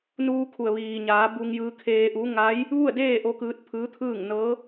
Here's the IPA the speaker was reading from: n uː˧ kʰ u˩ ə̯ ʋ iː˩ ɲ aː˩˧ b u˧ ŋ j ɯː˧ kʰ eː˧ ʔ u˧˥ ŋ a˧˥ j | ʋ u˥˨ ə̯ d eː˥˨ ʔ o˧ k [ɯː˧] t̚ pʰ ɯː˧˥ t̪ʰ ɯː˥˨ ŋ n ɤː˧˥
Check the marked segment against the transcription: correct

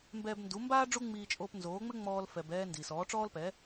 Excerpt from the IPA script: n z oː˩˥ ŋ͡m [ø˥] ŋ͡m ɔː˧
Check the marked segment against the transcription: incorrect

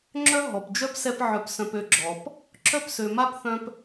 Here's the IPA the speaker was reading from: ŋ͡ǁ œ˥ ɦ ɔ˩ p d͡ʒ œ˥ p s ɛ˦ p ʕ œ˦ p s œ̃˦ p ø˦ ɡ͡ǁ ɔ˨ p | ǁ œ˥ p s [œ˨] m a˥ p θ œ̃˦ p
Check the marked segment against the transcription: incorrect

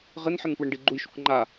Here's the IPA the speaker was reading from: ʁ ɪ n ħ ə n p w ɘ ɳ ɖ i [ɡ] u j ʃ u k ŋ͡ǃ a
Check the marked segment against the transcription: incorrect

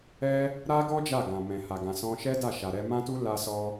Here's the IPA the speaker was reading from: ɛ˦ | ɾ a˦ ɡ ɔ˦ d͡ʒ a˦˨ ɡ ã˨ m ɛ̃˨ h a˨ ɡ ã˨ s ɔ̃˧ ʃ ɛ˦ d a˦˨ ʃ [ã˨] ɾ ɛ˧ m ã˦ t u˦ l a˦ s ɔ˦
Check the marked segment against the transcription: incorrect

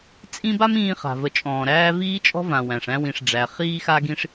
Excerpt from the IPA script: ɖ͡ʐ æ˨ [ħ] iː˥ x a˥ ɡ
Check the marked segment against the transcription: incorrect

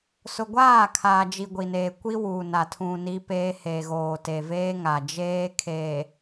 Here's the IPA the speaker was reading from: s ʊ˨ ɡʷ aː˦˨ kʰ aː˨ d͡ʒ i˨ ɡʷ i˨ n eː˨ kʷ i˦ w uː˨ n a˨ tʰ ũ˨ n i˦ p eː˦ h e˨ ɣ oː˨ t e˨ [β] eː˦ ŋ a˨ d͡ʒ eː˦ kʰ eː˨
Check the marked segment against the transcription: incorrect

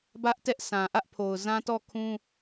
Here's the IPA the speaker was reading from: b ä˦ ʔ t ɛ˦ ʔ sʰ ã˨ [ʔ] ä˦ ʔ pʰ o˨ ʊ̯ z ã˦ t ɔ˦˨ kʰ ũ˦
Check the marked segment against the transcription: correct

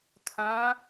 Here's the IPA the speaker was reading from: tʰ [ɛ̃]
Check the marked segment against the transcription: incorrect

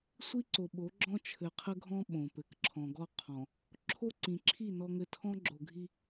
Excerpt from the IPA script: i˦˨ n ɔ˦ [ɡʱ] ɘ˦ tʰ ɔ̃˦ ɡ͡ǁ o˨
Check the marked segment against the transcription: incorrect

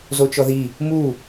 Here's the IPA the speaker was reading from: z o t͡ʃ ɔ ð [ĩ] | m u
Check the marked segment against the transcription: incorrect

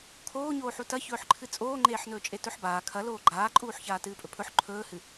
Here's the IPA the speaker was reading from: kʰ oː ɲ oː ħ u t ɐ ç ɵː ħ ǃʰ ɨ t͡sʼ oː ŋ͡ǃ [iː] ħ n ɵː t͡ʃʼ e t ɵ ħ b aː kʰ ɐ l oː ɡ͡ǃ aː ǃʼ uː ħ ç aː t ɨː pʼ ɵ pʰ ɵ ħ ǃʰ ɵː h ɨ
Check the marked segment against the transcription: incorrect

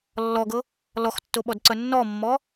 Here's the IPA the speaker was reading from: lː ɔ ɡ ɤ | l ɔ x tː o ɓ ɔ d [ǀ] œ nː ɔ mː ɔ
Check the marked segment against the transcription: correct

